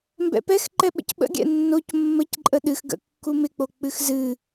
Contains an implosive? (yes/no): yes